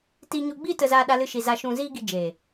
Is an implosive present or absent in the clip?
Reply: present